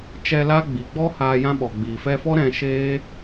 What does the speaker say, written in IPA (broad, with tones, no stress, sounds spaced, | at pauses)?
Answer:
t͡ʃ ɛ˧ l a˦ ɡ͡b i˨ ɡ͡b ɔ˦ h aː˧ j ã˦ ɓ ɔ˨ ɡ͡b iː˨ f ɛ˧ f ɔ˦ ɾ ɛ̃˧ ʃ eː˦